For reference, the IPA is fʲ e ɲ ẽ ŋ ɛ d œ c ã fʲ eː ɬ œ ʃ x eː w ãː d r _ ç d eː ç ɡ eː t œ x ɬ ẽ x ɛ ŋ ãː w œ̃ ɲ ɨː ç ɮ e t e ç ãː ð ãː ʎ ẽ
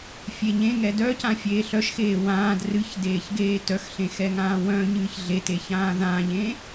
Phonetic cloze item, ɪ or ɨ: ɨ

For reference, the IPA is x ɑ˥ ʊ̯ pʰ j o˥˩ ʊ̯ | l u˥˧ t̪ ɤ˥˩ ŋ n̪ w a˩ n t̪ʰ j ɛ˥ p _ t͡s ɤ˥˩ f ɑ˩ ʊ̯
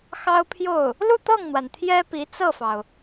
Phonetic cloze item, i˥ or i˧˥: i˧˥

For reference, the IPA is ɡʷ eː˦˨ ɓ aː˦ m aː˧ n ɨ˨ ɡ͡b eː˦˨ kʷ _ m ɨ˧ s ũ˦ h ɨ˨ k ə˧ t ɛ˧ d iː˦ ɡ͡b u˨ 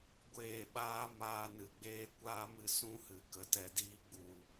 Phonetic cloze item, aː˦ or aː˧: aː˦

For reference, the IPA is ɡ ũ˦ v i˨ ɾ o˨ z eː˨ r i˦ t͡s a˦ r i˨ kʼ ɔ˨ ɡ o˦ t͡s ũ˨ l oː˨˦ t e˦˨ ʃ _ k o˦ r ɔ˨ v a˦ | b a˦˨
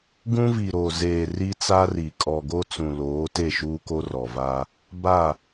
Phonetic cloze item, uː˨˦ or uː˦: uː˦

